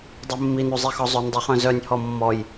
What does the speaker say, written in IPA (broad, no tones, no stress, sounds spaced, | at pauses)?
dˤ i mː i n u zˤ i x ɔ zˤ ø n dˤ i χ œ̃ z œ nʲ h ɔ mː ɔ j